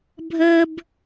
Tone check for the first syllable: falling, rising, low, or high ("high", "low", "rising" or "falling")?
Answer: high